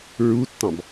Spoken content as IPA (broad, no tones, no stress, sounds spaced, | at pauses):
ɹ u tː ɑ̃ b